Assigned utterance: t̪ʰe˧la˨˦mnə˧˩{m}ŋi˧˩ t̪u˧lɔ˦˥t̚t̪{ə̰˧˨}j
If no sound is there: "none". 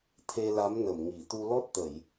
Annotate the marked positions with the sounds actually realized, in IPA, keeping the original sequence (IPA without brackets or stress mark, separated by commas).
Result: m, ə˧˩˨